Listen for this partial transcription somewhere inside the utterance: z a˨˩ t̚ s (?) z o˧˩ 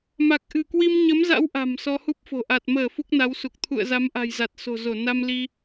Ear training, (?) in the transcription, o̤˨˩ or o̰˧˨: o̤˨˩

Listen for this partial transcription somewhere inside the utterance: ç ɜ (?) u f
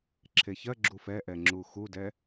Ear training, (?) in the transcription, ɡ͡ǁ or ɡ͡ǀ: ɡ͡ǁ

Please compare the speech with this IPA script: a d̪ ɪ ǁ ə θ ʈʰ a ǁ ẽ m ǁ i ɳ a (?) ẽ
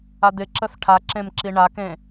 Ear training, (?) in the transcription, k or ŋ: k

